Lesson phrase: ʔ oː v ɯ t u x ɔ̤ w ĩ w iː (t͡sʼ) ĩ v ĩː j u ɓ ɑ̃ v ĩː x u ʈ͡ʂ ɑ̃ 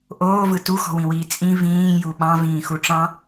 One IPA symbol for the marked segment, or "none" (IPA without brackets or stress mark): t͡sʼ